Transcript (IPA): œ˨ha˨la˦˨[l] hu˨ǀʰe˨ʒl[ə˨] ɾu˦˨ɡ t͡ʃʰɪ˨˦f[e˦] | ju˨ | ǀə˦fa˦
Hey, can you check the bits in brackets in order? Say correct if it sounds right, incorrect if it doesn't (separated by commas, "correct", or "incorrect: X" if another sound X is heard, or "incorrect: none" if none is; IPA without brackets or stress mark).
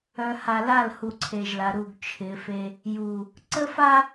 correct, incorrect: a˨, correct